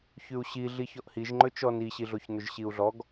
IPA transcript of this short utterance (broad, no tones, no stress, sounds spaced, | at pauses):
ç ʉ u̯ ɕ i ɮ i ç ɔ ʔ h i ʒ ŋ͡ǃ ɵ t͡ʃ ɔ n i ɕ i ɮ o ç n ɵ ʒ ɕ i u̯ ɮ ɔ ɡ